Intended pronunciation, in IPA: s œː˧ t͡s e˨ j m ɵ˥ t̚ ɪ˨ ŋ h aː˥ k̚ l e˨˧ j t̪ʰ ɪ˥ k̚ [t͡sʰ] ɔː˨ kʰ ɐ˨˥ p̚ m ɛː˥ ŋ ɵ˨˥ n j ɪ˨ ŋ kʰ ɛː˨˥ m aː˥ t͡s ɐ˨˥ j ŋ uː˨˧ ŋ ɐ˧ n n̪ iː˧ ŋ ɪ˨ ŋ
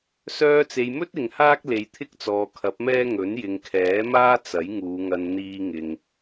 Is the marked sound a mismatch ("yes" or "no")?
yes